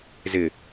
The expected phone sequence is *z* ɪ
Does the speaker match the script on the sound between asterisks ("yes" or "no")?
yes